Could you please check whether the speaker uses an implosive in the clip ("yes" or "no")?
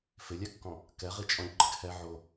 no